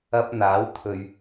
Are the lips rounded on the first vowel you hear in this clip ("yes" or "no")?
no